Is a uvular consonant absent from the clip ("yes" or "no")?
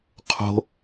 no